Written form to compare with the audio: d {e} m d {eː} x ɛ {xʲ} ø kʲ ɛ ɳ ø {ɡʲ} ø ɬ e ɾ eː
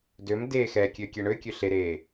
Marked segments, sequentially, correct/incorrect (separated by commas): incorrect, correct, incorrect, incorrect